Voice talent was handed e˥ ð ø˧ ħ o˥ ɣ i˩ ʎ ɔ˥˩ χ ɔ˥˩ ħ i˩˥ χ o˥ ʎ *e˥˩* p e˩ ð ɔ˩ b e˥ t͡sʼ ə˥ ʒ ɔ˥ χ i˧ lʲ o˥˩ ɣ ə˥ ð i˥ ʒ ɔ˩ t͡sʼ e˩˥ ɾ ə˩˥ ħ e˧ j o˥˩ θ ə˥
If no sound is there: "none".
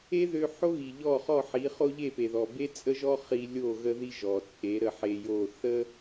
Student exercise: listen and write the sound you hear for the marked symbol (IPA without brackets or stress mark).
e˥˩